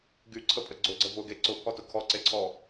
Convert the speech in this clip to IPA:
ɡ y ǀʰ ə pʼ ə ɡ͡ǀ ʊ ɡ͡ǀ ə v ʊ ɡ e ǀ ʊ pʰ ɔ t ʊ kʰ ɔ ǀ e ǀʰ ɔ

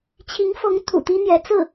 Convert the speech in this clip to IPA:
t͡ɕʰ i˧˥ ŋ f ɤ˧˥ ŋ t̪ʰ ṵ˨˩ t̪ i˥ n̪ j ɛ˧˥ t͡s ɹ̩˥˩

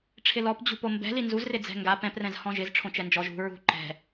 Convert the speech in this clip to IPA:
ʈ͡ʂʰ ɪ l ɔ p d͡ʑ ṳ p o m b ɛ̤ l i n z u z r ɪ d͡z ɛ̤ ŋ ɡ a p ɛ̃ p r ɛ̃ z h ɔ̃ ʒ ɪ z ʈ͡ʂʰ õ t͡ʃ ɛ n d͡ʒ ɔ ʒ ṳ ɹ ṳ ǃ ɛ̤

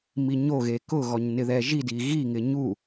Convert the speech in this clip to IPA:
m i ɲ o ɣ e k ʊ ɣ ɔ ɲ n ɪ ð ɛ ʒ i d i ɣ i ŋ ɪ ɲ u

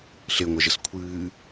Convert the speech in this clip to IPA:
ɬ e ŋʷ œ ʒ ə s kʷʰ ɨː

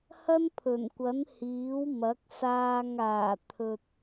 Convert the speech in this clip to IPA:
h ɐ˥ n pʰ ɵ˨˩ n kʷ ɐ˨˥ n h iː˨˥ w m ɐ˨˥ k̚ s aː˧ ŋ aː˨˩ t̪ʰ ɵ˨ t̚

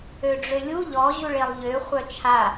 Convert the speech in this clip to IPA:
ø ɖ͡ʐ ø lʲ u ʎ ɔ ʑ u ɭ e lˠ ʎ ø χʷ œ t͡ʃʰ a

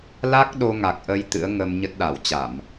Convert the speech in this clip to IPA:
l a˦˥ k̚ ɗ o˧ ŋ a˨˩ k̚ ʔ ə˧ j t̪ ɨ̰˧˥ ə̯ ŋ ə˧ m ɲ ə˦˥ t̚ ɗ a˧˩ w t͡ɕ a˧˩˨ m

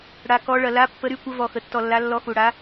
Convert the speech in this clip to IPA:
ɽ a˩ k ɔ˩˧ ɭ ɐ˩ l a˩˧ pː ə˩˧ ɾ y˩˧ kʷ ə˩˧ v ɔ˩ x ə˩ tː ɔ˩ lː a˩˧ lː ɔ˩˧ x u˩ ɽ a˩˧

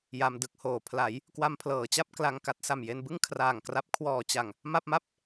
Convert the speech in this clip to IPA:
j a˧ m d ɯ˦˥ k̚ h oː˨˩ pʰ l a˩˦ j | k w a˧ m pʰ l ɤː˩˦ t͡ɕ a˥˩ p̚ k l a˧ ŋ k a˦˥ t̚ s a˨˩ m j e˧ n b ɯ˥˩ ŋ kʰ r aː˨˩ ŋ k r a˦˥ p̚ kʰ w ɔː˨˩ t͡ɕ a˨˩ ŋ | m a˥˩ p̚ m a˥˩ p̚

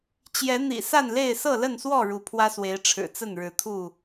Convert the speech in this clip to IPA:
t͡ɕ j ɛ˨˦ n̪ ḭ˨˩ s a˥˨ n l e˥˨ ɪ̯ s ɤ˥˨ l ə˥˨ n s w ɔ˥˨ ɻ u˨˦ pʰ w ä˦ s w e˨˦ ɪ̯ ʈ͡ʂʰ ɻ̩˨˩ t͡s ə˥˨ n ɻ ɻ̩˨˦ t̪ʰ u˥˨

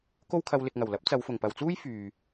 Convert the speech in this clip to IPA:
k o˥ w kʰ ɐ˧ w l ɪ˨ k̚ ŋ ɐ˨˩ w l ɐ˨˥ p̚ t͡s ɐ˨˧ w f ʊ˨˩ ŋ p ɐ˨ w t͡s uː˥ j f yː˨

